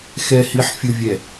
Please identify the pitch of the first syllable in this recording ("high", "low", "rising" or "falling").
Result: low